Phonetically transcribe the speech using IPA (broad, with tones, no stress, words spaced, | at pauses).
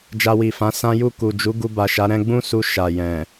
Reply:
d͡ʒa˧wi˨fã˨˦ sã˦ju˦˨ ku˨d͡ʒu˨˦ ɡu˧ba˨ʃa˨˦ ɾɛ̃˧ɡ͡bũ˦su˧ ʃa˨ jɛ̃˨